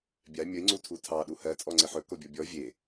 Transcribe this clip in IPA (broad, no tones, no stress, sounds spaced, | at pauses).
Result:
bʲ a mʲ ə i̯ ŋ͡ǀ u tʰ u tʰ ɑ ɗ u h ɜ t͡sʼ ɔ ŋ͡ǀ ɪ ħ ɵ k o bʲ ɔ bʲ ɔ vʲ e